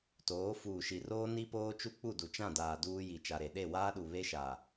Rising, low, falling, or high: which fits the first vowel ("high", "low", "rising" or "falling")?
rising